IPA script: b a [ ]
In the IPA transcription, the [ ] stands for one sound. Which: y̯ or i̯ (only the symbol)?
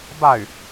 y̯